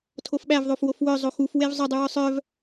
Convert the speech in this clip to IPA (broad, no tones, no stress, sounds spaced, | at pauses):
tʰ o f ɓ æ v ðˤ o f w o f w œ zˤ o x u f w e v zˤ ɵ dˤ ʉ w œ sˤ œ v